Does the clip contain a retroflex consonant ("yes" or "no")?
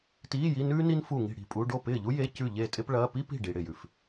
yes